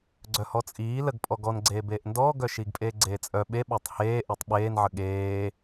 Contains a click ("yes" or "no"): yes